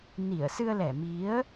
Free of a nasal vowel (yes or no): yes